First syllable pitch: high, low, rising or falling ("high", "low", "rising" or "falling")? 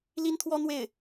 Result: high